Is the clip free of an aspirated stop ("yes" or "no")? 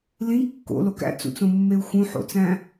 yes